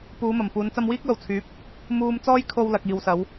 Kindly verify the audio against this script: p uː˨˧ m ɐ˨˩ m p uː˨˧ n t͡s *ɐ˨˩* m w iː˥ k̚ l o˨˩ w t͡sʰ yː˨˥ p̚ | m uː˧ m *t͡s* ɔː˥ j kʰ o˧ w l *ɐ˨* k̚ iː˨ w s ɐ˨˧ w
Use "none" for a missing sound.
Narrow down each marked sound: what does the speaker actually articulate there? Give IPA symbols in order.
ɐ˧, t͡s, ɐ˨

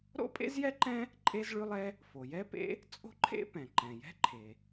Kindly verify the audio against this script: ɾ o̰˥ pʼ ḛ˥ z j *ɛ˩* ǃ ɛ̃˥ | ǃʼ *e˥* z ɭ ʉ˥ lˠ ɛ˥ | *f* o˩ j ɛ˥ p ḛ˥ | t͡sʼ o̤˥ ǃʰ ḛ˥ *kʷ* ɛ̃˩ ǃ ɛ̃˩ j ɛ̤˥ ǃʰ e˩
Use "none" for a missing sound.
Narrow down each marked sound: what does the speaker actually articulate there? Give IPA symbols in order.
ɛ˥, e˥, f, p

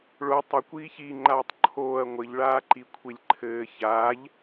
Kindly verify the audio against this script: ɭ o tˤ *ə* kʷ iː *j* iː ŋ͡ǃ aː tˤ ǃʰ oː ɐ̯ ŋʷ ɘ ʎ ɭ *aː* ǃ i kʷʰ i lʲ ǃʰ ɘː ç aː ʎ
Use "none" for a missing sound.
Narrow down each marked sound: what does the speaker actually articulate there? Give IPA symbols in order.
ə, ç, aː

